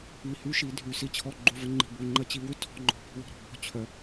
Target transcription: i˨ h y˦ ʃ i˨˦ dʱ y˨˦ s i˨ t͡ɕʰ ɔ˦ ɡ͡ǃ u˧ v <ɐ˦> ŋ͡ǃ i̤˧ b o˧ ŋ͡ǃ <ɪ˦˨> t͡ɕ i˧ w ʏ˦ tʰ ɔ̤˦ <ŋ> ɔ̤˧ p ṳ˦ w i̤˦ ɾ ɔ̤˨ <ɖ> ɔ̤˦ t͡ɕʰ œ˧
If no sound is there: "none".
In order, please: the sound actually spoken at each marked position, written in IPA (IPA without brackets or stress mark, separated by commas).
ə˦, ə˦˨, ŋ͡ǃ, b